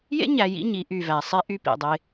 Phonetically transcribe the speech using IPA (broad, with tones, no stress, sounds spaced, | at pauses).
j ḛ˦ ɲ æ˨ j ḭ˦ ɲ i˨˦ ʔ y˨ v æ˨ sˤ e˦ ʔ y˦ p ḭ˨ dˤ e˦